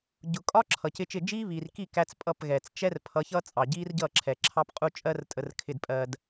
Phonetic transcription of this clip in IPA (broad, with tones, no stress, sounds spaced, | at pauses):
ɟ ʊ˨ kʼ ɒ˦ ǁʰ ʌ˨ c ɪ˦ t͡ʃ ɪ˦˨ d͡ʒ iː˦ β iː˨ r k i˦˨ k æ˦ t͡s pʼ ʌ˦˨ p ɣ ɛː˨ t͡s t͡ʃ ɛ˦ r pʰ ʌ˨˦ ç ʌ˦ t͡sʼ ɑ˨ ɟ iː˦ r ɟ ʌ˦˨ ǁʰ ɛ˨ ǁʰ ɑ˦ p qʼ u˦ t͡ʃʼ ɜ˦ r tʼ ə˨ r kʰ ɪ˨ d pʼ ɜ˨ d